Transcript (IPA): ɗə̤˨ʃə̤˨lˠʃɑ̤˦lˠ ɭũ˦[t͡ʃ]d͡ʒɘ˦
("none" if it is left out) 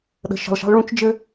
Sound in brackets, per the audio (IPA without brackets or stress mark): t͡ʃ